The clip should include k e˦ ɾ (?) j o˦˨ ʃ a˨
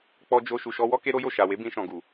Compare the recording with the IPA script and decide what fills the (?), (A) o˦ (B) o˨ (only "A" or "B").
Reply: A